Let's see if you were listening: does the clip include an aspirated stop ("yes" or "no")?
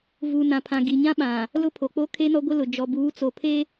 yes